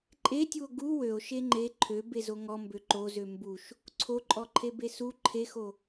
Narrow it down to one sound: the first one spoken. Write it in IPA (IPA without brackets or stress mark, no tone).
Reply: ǃʼ